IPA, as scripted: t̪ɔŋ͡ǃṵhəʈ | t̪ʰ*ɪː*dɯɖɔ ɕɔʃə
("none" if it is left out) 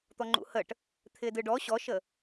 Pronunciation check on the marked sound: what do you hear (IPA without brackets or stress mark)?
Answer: ɪː